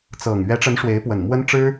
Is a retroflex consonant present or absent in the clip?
present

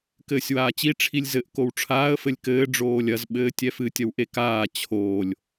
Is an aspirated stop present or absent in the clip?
present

